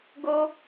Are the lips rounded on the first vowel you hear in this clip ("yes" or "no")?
yes